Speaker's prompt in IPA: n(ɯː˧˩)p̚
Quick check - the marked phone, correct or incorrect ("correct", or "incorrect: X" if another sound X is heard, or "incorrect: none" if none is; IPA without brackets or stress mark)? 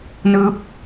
incorrect: ɯː˧˥